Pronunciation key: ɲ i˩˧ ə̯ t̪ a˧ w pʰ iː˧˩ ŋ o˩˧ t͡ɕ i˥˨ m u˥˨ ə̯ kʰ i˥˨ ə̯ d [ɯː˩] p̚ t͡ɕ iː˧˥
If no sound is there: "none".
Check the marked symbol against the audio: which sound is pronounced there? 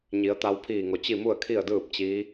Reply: ɯː˥˨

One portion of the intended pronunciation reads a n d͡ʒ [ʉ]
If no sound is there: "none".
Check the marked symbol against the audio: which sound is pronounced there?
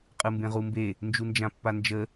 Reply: ə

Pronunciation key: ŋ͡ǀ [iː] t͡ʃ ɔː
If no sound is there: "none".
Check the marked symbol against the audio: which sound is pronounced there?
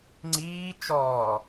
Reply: iː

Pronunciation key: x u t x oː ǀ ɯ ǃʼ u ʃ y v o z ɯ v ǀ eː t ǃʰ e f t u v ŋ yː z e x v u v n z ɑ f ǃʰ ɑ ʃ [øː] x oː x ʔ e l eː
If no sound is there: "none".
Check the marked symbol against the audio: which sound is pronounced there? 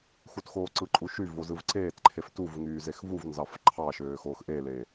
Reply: øː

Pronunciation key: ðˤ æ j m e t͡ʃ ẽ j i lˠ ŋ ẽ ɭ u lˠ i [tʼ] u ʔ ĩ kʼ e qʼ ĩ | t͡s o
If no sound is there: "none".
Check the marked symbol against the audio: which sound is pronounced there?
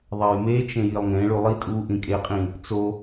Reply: tʼ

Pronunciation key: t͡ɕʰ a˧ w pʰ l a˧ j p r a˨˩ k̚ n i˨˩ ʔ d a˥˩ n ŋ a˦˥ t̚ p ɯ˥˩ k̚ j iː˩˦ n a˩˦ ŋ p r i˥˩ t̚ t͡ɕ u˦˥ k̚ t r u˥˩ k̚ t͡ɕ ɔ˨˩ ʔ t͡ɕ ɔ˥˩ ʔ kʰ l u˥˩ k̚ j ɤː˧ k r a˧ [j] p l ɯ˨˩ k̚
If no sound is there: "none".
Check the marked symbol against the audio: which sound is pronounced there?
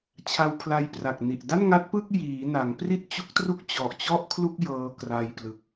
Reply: j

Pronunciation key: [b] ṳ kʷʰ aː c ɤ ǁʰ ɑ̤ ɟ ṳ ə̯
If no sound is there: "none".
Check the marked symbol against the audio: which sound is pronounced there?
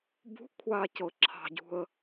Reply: b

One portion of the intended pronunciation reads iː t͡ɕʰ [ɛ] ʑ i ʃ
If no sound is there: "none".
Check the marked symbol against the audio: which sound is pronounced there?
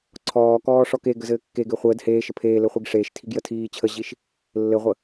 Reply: ə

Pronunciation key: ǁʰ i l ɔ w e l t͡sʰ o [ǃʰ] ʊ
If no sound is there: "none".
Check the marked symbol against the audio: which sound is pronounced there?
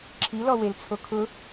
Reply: kʰ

